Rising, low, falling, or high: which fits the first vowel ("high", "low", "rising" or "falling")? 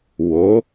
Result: rising